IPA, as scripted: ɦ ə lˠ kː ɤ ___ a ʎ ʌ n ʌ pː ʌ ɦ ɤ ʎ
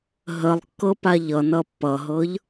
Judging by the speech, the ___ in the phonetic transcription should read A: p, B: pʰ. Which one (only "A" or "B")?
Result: A